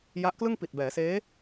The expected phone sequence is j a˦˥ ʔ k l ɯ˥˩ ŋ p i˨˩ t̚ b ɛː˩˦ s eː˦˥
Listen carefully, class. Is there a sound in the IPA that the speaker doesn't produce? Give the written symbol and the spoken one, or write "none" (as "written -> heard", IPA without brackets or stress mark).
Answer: none